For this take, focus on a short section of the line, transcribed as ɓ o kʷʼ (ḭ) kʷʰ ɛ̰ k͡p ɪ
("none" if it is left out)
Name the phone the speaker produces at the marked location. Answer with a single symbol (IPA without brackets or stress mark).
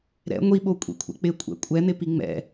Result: ḭ